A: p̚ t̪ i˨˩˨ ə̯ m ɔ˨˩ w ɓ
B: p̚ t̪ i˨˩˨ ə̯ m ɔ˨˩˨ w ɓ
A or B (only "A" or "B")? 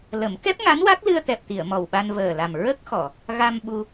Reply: A